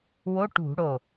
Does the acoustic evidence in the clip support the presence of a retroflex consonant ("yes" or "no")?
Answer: yes